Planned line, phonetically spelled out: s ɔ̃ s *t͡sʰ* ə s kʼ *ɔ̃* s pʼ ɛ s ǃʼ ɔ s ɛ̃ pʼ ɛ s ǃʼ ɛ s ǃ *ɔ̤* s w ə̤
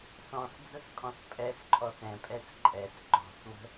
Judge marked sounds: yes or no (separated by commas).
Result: no, yes, yes